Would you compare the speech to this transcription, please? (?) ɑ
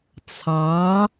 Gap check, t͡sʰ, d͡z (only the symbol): t͡sʰ